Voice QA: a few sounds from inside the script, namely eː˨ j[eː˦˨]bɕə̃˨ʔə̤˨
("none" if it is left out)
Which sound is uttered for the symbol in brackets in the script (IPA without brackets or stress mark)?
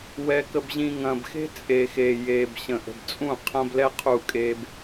eː˨